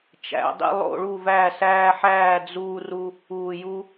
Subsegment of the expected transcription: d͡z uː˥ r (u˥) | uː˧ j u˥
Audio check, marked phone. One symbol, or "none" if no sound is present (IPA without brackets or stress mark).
u˥